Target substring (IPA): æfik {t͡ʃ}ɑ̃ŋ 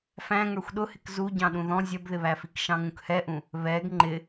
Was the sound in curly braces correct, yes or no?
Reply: no